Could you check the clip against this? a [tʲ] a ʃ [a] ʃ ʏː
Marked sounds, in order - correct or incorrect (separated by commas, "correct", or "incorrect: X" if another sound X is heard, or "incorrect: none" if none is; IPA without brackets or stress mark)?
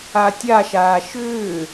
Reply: correct, incorrect: aː